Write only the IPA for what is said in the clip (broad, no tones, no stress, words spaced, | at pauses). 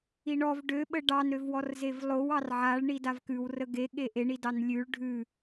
iɳɔv ɖøɓə ɖɑnɾøvwɔrzev lˠow ɑrʕaɭ ɳidavkʉw rəɡe ɠeʔeɳidɑn lʲʉɭ ɖʱʉ